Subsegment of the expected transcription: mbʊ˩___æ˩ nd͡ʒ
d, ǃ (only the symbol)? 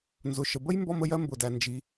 d